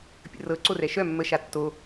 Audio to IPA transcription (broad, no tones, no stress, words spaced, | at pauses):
pʲə̰rɤ ǀorɛʃœ mːəʃa tːo